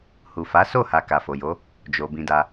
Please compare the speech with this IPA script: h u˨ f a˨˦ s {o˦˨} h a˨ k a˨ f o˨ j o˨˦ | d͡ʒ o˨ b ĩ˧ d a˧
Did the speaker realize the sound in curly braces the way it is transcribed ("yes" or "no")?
yes